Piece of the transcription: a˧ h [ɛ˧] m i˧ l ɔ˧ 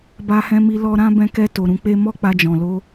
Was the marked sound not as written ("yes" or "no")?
yes